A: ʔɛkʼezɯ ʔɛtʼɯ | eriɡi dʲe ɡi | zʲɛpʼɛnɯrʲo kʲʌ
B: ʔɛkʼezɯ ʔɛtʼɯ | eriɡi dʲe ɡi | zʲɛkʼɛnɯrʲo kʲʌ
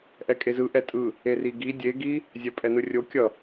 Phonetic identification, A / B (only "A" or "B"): A